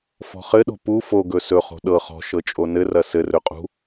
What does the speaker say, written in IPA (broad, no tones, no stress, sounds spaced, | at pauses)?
f ɔ̤ χ ɘ ɗ o̤ p u f o ɡ ɵ s ɵ χ o̤ ɗ ɤ χ ɔ̤ ʃ ɤ t͡ʃʼ o n ɘ r ɐ s ɘ r ɵ qʼ ṳ